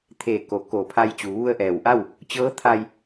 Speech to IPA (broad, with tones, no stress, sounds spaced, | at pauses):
t̪ʰ eː˧˩ k o˩˧ k oː˧˩ pʰ a˧ j t͡ɕ uː˩˧ ʋ u˧ ə̯ ʔ ɛː˩ w ʔ a˥˨ w | t͡ɕ ɤː˧˥ t̪ʰ a˧ j